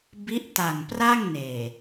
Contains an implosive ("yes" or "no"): no